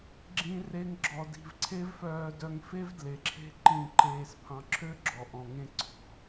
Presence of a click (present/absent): present